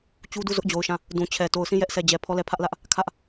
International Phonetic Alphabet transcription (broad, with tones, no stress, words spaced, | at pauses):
t͡ɕu˦du˦˨ zʊ˦ʔd͡ʑo˨ʊ̯ʃã˦˨ | dũ˨t͡ɕʰɛ˨ to˨ʊ̯sĩ˦˨ jɛ˦ʔsʰɛ˨d͡ʑɛ˨ pʰɔ˦˨lɛ˦˨ pʰä˦ʔlä˦ʔ | kʰä˦ʔ